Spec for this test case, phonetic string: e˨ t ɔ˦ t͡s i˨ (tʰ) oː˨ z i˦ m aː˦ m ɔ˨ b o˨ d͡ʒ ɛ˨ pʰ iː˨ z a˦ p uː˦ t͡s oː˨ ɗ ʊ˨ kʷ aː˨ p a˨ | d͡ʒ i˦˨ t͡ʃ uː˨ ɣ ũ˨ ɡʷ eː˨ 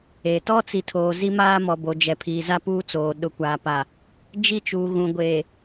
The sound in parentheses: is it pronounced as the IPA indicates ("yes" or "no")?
yes